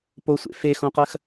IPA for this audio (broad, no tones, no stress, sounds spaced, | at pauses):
p o sʷ ḛ f e x õ q ɜ x